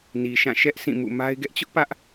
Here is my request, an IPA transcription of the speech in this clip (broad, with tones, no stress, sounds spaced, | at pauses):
n i˨ ʃ ã˦˨ ʃ ɛ˦ ʔ sʰ ĩ˦˨ m ṵ˦˨ m a˦ ɪ̯ ɡ ɛ˦ ʔ t͡ɕ ʊ˦ ʔ p ä˦ ʔ